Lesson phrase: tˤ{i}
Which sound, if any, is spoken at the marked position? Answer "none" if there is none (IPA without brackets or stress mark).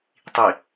i